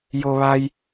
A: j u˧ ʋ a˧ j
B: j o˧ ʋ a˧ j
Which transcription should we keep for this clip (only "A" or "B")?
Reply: B